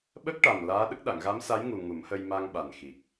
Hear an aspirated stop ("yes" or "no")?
no